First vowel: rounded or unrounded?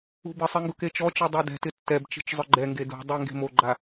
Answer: rounded